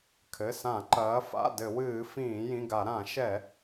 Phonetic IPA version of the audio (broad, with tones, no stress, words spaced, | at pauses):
kʰɘ˩˧˩sã˧˩˧ ǃɐː˩˧fa̰˩˧˩ dɘ˧˩˧wɨː˧˩˧ fĩː˧˩˧jĩ˩˧˩ɡa˧˩˧ ɾã˧˩˧ʃɛ˧˩˧